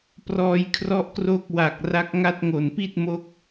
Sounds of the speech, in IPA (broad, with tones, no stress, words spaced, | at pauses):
prɔː˧jkʰrɔ˥˩ʔkroː˥˩k̚ wa˨˩k̚ ra˦˥k̚ŋa˥˩t̚ ŋo˨˩npi˥˩t̚mo˦˥k̚